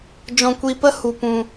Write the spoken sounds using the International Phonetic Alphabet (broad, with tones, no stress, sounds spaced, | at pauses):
d͡ʒ ɔ̃˧ kʷ i˧ p ə˦ h u˧ p ũ˧